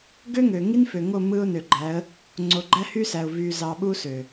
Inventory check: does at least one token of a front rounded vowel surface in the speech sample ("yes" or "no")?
yes